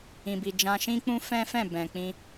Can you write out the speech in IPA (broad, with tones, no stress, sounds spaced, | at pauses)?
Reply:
ĩ˨ b i˨ d͡ʒ ã˧ ʃ ĩ˦ k͡p ũ˦ f ɛ̃˦ f ɛ̃˦˨ b ɛ̃˨ k͡p ĩ˧